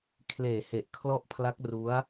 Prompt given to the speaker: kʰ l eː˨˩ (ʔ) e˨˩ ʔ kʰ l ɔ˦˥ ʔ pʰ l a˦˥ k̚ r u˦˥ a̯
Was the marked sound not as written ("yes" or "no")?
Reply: yes